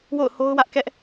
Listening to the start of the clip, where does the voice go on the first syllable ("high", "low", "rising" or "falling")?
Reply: falling